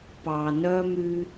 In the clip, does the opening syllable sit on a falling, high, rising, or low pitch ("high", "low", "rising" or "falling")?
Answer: low